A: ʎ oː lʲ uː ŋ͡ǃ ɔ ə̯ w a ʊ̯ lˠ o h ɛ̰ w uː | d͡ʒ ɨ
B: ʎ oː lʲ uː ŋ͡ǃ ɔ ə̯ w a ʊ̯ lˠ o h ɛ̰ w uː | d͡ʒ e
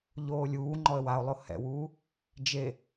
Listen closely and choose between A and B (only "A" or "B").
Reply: B